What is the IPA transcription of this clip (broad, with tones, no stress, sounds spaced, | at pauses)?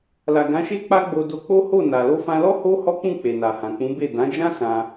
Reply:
l a˨ ɡ ã˨˦ ʃ e˦ k͡p a˦ ɡ͡b o˧ d o˧ k͡p o˦ h o˦˨ n a˨ l o˧ f ã˧ l ɔ˦ h o˦ h ɔ˦ k͡p ũ˦˨ k͡p e˨ n a˨ h ã˨ k͡p ũ˨˦ b e˦˨ d ã˨˦ d͡ʒ ã˦ s ã˧